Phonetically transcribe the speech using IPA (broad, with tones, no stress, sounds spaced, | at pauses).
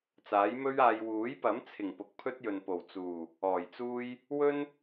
t͡s aː˨˥ j m ɵ˥ ɥ aː˧ j w uː˨˥ j p ɐ˨˥ m t͡sʰ ɪ˨˩ ŋ p ʊ˨ k̚ pʰ ɵ˥ t̚ j ɵ˨ n p o˨˩ w t͡s uː˨˩ | ɔː˨˩ j t͡s uː˥ j | w ɵ˥ n